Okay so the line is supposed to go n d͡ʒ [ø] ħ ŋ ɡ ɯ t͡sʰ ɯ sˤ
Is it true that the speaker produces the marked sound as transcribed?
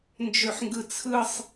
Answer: yes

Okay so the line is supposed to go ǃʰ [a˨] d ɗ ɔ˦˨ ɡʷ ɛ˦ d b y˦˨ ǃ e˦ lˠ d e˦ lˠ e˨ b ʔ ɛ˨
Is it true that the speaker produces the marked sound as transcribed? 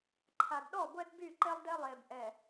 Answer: yes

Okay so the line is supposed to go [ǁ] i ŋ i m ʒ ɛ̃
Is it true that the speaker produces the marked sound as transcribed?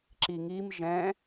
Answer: yes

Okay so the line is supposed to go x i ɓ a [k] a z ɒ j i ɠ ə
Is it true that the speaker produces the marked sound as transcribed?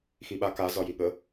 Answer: yes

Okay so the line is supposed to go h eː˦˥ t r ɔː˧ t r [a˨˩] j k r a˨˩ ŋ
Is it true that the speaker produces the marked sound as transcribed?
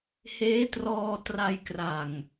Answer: no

